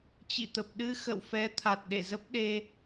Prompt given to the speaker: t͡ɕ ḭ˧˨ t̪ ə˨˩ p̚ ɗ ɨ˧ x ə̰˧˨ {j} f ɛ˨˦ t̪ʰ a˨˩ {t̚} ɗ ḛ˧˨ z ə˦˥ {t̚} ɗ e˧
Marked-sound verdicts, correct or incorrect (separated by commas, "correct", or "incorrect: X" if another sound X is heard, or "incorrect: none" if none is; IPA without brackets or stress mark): incorrect: w, correct, incorrect: p̚